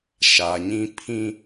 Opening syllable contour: low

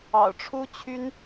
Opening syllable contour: low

